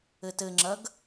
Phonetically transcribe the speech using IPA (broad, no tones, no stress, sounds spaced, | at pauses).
ɘ t ɘ ŋ͡ǁ ɐ ɡ